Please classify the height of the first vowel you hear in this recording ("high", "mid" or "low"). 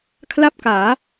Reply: low